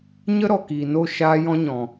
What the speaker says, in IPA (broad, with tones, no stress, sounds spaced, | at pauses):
ɲ ə˦ ɾ ɔ˨ k iː˨ n o˦˨ ʃ aː˦ j ɔ̃˦ ɲ ɔ̃˨